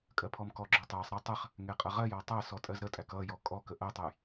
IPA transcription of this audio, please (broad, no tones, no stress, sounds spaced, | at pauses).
kʼ ɜ pʰ ɔ m k ɔ ɡ͡ǁ ɔ tˤ æ sˤ ɾ ɛ tˤ ə χ | ŋ ɛ qʼ ʌ ʁ ɜ j ɔ tˤ æ s ɔ tʼ ɜ z ɾ ə tʼ æ k ʌ j ɔ kʼ ɔ k ə ʔ ɜ tˤ ə j